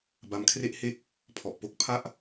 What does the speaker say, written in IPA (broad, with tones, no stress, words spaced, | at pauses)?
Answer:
ba˧mkʰre˥˩ʔhe˥˩k̚ | pʰɔ˨˩ʔpo˦˥k̚pʰa˥˩ʔ